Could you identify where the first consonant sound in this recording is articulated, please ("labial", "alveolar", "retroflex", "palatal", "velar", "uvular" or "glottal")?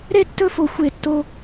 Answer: alveolar